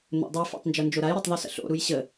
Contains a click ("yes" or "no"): no